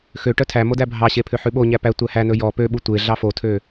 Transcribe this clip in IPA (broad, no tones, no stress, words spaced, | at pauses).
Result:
xø ʈœtʰæmo dæbʱɑɕe pʰøħʉɓoɲæ pæ tʷæhænɵ jɔ pøɓu tʷe ɮɑfotʰø